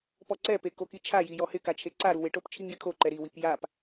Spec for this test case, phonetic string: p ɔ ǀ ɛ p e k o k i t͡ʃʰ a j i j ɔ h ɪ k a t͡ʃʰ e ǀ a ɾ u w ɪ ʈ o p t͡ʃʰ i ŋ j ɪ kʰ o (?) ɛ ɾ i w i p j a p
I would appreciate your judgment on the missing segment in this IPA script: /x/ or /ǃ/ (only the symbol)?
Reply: ǃ